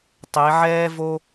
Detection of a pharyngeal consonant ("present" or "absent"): present